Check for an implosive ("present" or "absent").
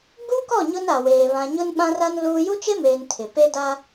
present